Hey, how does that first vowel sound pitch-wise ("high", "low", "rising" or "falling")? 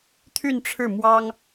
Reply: falling